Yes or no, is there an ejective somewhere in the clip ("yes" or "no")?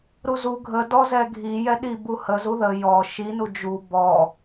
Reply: no